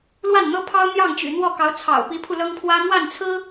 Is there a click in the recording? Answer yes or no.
no